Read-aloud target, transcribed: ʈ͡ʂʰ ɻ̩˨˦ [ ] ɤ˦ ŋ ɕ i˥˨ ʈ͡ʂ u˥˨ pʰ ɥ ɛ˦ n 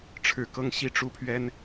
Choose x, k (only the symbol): k